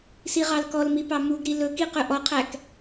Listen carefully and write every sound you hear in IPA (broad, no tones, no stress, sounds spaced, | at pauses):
s i ʁ ɑ l k ɔ l m i p ɑ m u ɡ ɾ i l ɵ k i q ɵ ʔ ɔ qʰ æ k